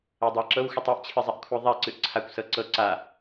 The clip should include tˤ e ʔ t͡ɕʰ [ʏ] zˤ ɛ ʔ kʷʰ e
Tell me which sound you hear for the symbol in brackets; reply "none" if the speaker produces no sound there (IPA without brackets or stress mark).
ɨ